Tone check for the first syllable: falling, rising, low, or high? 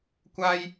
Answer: high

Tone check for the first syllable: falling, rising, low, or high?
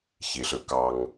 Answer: low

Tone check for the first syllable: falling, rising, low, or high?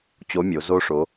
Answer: rising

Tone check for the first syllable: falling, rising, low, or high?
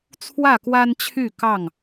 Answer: falling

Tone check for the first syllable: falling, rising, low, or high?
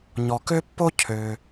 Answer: low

